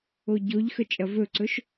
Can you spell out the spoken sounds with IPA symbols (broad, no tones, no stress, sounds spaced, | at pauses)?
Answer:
o ɟ o ʎ x ə t͡ʃʼ ɐ v ɵ ǀ ɵ ʃ